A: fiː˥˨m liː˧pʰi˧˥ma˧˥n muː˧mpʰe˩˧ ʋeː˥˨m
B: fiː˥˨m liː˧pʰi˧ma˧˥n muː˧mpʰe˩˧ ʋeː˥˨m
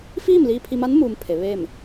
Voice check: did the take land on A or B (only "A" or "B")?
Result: B